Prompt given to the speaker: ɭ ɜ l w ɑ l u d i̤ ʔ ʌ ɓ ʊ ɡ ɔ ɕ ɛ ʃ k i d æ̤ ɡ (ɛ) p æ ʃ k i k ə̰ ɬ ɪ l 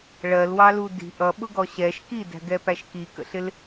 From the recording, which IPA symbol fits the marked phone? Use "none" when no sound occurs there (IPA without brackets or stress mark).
ɛ